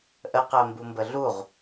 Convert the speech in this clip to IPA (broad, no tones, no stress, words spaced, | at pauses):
ʔəqɜmbumbə ɮuʁ